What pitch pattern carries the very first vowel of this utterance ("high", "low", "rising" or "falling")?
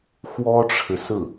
high